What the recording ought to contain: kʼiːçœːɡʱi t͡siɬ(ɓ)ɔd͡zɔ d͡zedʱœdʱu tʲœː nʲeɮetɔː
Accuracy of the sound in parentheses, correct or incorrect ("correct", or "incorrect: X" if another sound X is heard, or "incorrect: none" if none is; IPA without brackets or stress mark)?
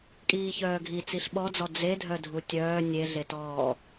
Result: correct